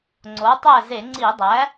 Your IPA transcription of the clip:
ŋ͡ǀ o˩˥ tˤ æ˥˨ z e˧˩˧ ŋ͡ǀ i˧˩˧ dˤ æ˩˥

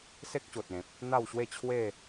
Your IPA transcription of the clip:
s e˦ k̚ ɕ o˨ t̚ ẽ˨ p̚ | n̪ a˥˧ w ɕ w e˥˧ t͡ɕʰ w e˥˧

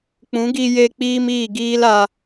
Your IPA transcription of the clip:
k͡p ũ˨˦ ɡ i˧ j e˧ k͡p iː˦ m iː˦˨ ɡ iː˦ l a˧

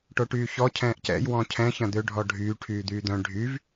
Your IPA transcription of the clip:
ʈ o ʈ yː ç ɔ cʰ ɛ̃ː ʔ c ɛ̰ j w ɔ̃ cʰ ɛ̃ ç ɐ̃ d̪ ø ɖʱ ɔ ɖʱ yː ʈʰ yː d̪ yː d̪ œ̃ ɖʱ y v

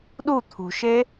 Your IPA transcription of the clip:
ɗ u t̪ʰ ṳ ʃ e

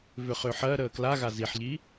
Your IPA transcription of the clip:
v ʏ χ ʏː ħ ɜ ɾ əː k l a ɣ a z i ħ ʎ i

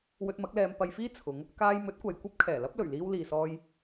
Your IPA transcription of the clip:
w ɵ˧ t̚ m ɐ˨˥ k̚ l ɛː˧ m p ɐ˧ j f iː˥ t͡sʰ ʊ˨˧ ŋ | k aː˧ j m ɵ˨˥ t̚ kʷ ɐ˨ j kʷ ɐ˥ p̚ kʰ ɛː˨˩ l ɐ˥ p̚ l ɵ˨˩ ɥ l iː˧ w l iː˨ s ɔː˧ j

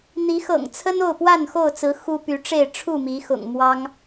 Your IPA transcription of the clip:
n̪ i˨˦ x ɤ̰˨˩ ŋ t͡sʰ ə˦ n o˥˨ ʊ̯ p w a˥˨ n x o˥˨ ʊ̯ t͡s ɹ̩˨˦ x u˦ p y˨˦ ʈ͡ʂ e˥˨ ɪ̯ ʈ͡ʂʰ u˥˨ m i˨˦ x ʊ̰˨˩ ŋ m w ɑ˦ ŋ

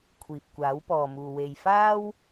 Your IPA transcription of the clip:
kʷʰ iː˨ p̚ kʷ aː˨˥ w p ɔː˨ m uː˨ w e˨ j f aː˥ w

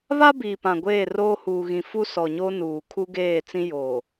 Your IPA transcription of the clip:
β a˦ b iː˨ p ã˨ ɡʷ eː˦˨ r oː˦ h uː˨ ɣ ĩ˨ f u˦ s ɔ˨ ɲ oː˦ n uː˨ kʰ u˦ ɡ eː˦˨ t͡s ĩ˦ j oː˨

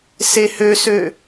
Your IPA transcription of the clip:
s e h ø s ø

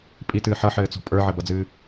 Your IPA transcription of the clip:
pʼ i t ɨː ħ ʌ ħ ɘː t͡s ɔ̤ pʼ ə˞ ʕ ɘ b ʌ d͡z ɨː

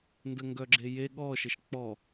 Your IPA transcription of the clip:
n d ə ŋ ɡ œ ɡ͡ǁ e j e ɠ ɔ ʃ ə ʃ k͡p ɔ

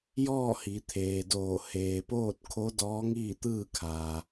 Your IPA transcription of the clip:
j ɔː˥˨ h i˩˧ t̪ʰ eː˩ d oː˧˩ h eː˩ p oː˥˨ t̚ kʰ o˧˥ d ɔː˧˥ ŋ iː˥˨ t̪ ɯː˥˨ kʰ aː˩

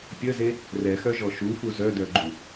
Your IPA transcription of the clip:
pʲ ə z e | r ɛ x œ ʒ ɔ ʃ u f u z œ d œ ɡ͡ǃ u

